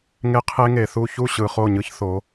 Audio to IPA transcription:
ŋ e˦ qʰ e˦ ŋ e˨ θ u˦˨ ç u˦˨ ɕ ɯ˨ χ o˦˨ ɲ ɯ˦ ç θ o˨˦

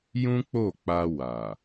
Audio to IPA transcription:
j ũ˦ k͡p o˦˨ k͡p a˧ w a˨

